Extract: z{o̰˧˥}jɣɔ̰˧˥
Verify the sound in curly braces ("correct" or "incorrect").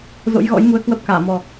correct